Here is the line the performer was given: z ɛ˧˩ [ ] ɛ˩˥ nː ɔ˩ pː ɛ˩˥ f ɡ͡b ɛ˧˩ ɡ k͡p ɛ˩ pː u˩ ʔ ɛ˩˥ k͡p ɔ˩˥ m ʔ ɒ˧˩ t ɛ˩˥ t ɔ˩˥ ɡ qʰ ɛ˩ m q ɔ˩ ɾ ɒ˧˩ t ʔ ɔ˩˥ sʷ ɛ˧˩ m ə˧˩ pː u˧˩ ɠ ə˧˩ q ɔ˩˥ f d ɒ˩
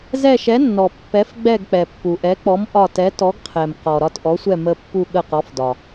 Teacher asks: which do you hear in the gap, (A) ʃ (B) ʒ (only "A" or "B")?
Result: A